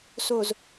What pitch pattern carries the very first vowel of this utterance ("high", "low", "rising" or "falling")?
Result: low